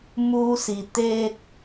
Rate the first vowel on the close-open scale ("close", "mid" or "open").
close